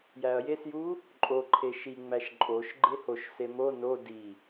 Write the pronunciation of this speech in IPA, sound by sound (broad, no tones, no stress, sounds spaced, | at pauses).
j æ ɐ̯ j e s j u | ǃʼ o ǃʰ e ʃ i ŋ͡m æ ʃ ǃʼ o ʃ ɡ͡ǃ e h o ʃ s e m o n o d i